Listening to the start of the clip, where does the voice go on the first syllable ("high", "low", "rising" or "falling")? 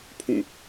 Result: falling